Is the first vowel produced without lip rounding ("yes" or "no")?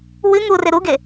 yes